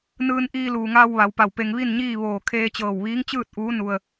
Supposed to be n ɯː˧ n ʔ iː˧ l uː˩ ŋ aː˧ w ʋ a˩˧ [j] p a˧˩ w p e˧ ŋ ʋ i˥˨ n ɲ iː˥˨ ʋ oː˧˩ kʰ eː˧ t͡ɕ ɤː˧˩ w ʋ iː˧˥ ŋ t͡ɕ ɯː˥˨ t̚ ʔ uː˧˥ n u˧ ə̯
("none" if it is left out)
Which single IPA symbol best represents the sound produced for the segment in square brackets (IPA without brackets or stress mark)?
w